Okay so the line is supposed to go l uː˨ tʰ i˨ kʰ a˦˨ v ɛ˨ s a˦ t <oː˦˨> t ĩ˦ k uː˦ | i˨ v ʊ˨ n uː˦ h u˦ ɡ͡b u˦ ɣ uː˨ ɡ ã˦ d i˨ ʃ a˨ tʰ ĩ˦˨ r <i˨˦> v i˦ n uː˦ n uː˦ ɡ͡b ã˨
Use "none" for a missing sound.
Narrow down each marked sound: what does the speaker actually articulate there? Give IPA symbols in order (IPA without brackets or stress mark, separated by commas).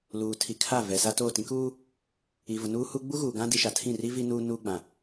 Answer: oː˦˨, i˦